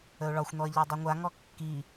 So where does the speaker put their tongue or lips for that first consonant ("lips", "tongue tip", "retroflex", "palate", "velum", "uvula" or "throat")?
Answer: retroflex